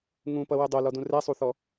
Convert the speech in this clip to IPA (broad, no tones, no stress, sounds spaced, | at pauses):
ŋ ũ p ʌ w ɘ dˤ o l ɔ d ũ r ɛ sˤ u θ ɔ